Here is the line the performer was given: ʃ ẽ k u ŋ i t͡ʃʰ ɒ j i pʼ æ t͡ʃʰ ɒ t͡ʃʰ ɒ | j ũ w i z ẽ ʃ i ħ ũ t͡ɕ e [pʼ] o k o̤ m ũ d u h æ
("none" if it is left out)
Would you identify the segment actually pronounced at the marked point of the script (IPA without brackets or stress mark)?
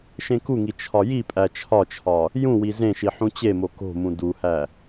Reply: m